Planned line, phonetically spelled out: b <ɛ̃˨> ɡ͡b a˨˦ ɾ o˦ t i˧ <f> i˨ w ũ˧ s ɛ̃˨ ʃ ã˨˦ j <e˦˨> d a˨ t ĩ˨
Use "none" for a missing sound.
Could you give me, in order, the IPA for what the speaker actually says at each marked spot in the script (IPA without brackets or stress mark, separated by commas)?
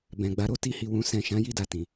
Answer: ɛ̃˨, h, i˦˨